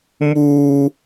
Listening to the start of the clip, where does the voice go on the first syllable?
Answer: high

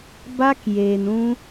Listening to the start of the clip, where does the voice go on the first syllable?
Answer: high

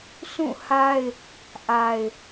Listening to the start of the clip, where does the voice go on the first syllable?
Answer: falling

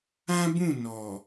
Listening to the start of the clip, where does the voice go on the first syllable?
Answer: high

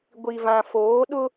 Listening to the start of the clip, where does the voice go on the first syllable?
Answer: low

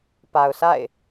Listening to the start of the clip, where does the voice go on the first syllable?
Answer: low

